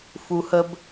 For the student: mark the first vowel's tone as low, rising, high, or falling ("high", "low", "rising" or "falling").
low